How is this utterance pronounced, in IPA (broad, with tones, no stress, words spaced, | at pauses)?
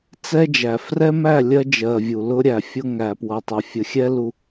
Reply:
t͡sɛ˦d͡ʒæ˨ frɛ˦mæ˦˨ lʲɜ˦d͡ʒɜ˨vʲu˨ lʊ˦ɾʲæ˨fʲʊ˦ ŋæ˨pwʌ˨tˤɪ˨ fʲə˨xʲɛ˦lu˨